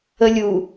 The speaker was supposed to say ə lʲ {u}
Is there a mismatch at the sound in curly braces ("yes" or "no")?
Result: no